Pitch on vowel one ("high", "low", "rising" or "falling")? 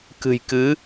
low